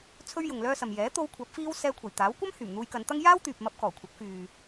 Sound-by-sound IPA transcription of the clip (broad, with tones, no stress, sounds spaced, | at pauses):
t͡sʰ ɵ˥ ɥ j ʊ˨ ŋ l œː˥ s ɐ˨ m j ɛː˨˥ t̪ o˧ w kʷʰ ɐ˨˥ p̚ f iː˧ w s ɛː˧ kʷʰ ɐ˨˩ j t̪ aː˨˥ w kʷ ɐ˥ m h yː˨˩ m n̪ uː˧ j k ɐ˨˧ n t̪ ɐ˥ ŋ j aː˥ w t̪ yː˨ p̚ m ɐ˧ p̚ k ɔː˨˩ kʷʰ ɐ˨˥ k̚ f yː˨